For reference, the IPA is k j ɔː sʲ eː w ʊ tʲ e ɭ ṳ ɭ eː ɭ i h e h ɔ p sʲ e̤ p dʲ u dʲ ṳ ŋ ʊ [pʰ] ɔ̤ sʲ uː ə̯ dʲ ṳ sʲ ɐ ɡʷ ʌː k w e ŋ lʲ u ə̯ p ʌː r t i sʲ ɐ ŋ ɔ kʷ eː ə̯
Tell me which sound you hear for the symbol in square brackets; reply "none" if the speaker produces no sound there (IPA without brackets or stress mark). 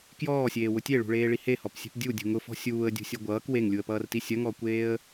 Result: f